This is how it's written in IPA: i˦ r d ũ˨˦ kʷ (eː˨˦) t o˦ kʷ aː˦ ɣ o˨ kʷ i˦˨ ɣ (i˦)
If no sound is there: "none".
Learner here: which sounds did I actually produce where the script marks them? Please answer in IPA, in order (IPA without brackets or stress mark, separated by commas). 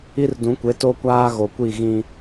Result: e˨˦, ĩ˦